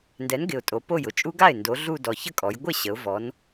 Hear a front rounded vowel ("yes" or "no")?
no